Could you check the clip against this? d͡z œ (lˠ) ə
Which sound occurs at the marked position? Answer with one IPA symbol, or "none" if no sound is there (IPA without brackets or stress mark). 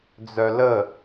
l